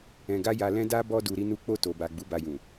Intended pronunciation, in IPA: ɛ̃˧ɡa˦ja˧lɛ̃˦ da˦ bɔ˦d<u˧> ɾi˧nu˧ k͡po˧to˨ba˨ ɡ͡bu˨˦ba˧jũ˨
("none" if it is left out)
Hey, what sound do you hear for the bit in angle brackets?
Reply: u˧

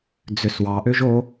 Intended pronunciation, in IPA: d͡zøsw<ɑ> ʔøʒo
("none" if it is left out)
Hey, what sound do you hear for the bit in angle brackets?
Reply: ɑ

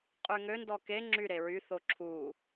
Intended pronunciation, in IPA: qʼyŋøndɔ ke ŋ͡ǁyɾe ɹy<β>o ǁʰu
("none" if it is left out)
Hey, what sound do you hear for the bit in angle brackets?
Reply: θ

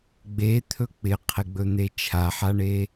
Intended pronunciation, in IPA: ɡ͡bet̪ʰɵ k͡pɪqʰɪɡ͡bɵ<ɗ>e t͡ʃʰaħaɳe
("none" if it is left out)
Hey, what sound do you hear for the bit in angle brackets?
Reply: n̪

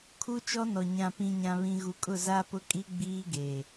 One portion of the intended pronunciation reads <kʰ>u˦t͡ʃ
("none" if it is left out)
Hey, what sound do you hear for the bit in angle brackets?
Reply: kʰ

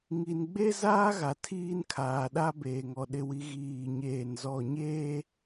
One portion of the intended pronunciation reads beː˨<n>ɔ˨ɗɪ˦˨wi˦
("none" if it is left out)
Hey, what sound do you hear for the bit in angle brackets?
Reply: ŋ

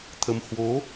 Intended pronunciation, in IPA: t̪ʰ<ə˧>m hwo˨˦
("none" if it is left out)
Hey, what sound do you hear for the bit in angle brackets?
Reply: ə˧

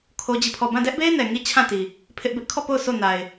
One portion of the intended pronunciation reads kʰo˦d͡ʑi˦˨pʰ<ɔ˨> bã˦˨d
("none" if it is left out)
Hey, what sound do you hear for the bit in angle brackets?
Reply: ɔ˦˨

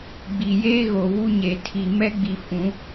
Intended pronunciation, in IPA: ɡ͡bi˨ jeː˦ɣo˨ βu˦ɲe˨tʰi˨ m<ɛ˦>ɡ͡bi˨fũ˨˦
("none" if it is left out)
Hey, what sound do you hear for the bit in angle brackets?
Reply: ɛ˦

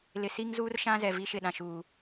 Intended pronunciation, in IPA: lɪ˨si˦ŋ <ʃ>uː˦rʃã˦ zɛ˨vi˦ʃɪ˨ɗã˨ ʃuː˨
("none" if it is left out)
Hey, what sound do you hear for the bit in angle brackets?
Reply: z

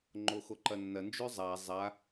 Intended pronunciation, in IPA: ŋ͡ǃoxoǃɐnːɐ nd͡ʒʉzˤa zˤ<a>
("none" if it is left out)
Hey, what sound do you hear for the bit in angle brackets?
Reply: a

